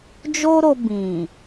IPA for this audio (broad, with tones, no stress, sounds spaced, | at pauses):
d͡ʒ o˦ ɾ o˧ b ĩ˨